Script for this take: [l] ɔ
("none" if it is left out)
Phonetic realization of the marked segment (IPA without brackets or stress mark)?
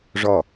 ʐ